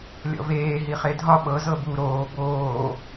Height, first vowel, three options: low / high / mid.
mid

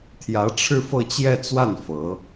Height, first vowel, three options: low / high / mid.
low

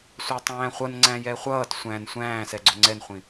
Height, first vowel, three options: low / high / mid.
low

